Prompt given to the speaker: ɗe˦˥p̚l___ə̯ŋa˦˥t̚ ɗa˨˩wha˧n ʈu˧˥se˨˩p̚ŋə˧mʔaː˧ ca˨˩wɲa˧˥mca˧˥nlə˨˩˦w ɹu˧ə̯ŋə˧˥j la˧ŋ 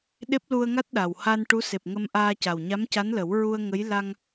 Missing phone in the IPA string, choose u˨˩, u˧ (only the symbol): u˧